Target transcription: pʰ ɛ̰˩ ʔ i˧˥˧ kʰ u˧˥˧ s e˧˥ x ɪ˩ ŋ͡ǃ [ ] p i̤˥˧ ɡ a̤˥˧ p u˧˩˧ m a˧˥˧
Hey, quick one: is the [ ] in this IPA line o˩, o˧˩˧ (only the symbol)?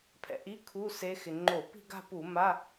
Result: o˧˩˧